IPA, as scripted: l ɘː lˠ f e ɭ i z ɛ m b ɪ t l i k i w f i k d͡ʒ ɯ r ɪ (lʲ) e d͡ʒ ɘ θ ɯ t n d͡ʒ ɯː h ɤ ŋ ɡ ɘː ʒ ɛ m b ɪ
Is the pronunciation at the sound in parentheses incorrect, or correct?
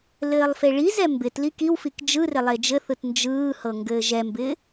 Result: incorrect